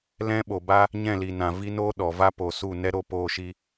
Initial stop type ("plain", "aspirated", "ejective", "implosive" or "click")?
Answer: implosive